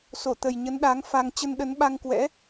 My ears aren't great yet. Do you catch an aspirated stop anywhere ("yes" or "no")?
no